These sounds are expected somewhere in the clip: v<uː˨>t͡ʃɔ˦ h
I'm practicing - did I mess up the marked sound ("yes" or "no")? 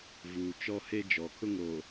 no